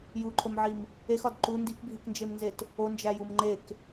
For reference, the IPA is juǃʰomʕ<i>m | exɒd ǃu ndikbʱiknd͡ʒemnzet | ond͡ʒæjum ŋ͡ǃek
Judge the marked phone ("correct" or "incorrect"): correct